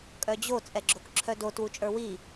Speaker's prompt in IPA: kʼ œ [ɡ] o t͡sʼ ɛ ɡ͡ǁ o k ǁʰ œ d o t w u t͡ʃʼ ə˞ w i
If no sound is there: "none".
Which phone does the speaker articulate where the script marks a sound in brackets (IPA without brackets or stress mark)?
d͡ʑ